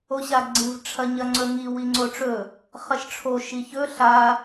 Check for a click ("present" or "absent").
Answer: present